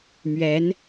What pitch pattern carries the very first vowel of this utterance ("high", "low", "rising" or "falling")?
rising